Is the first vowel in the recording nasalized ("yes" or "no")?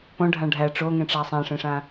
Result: yes